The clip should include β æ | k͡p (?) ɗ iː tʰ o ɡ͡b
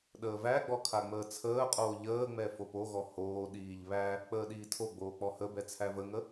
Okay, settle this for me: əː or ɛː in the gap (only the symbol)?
əː